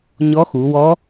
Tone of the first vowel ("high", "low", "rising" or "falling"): rising